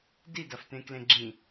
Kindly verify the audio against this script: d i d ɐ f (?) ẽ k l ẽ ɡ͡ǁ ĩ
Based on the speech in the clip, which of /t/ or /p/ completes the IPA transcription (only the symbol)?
t